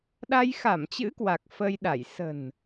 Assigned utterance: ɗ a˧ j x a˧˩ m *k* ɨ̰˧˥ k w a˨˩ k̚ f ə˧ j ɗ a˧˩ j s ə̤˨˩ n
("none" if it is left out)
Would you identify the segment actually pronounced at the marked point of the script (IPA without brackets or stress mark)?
t͡ɕ